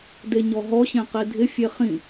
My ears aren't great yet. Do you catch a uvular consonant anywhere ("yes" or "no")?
yes